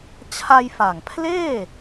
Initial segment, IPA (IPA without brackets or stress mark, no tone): t͡ɕʰ